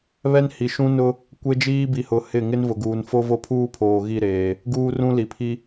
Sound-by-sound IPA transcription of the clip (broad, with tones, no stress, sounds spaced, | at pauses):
β ɛ˦ n h i˨ ʃ ũ˦ n ʊ˦ | kʷ e˦ d͡ʒ iː˦ b i˨ h ʊ˨ h ɪ˦˨ ŋ ɪ˦ n v ʊ˨ ɡ uː˨ n f o˦ v o˦ pʰ uː˦ pʰ oː˨ ɣ i˦˨ ɾ eː˨ | ɡ uː˦ r ũ˦ l i˨ pʰ i˦